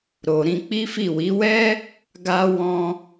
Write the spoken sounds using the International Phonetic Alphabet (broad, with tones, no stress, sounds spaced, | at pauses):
ɾ o˨ ɾ ĩ˧ k͡p i˦ f i˦˨ w i˨˦ w ɛ˦ | ɡ a˦ w ɔ̃˧